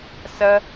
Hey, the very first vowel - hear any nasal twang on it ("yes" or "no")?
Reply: no